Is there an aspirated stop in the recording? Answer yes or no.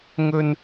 no